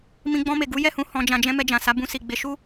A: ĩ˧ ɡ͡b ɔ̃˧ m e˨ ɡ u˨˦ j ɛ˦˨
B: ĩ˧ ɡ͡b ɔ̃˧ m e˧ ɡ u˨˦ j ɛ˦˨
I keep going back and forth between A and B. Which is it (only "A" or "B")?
A